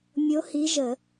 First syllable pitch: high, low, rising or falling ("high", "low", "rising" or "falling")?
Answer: rising